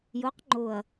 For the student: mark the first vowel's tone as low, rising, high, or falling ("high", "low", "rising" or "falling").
rising